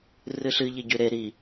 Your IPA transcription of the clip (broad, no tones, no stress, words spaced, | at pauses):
rɨɬɨ ʎeɟʉɾe ɾi